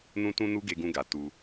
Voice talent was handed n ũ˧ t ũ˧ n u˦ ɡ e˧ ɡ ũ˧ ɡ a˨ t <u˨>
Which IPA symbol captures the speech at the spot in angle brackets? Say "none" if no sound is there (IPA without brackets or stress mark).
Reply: u˧